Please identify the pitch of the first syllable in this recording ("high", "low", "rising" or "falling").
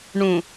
low